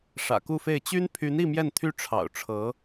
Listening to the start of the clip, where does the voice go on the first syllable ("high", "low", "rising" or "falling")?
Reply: low